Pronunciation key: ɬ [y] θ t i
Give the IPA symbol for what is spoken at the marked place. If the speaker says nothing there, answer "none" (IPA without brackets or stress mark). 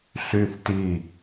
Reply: y